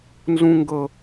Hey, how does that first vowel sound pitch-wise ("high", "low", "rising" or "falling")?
high